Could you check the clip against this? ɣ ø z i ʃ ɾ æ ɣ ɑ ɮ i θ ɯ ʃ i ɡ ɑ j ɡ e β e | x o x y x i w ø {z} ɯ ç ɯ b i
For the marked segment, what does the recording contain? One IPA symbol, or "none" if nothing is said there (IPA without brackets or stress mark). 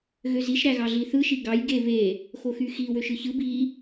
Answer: ʃ